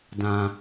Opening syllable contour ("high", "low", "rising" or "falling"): high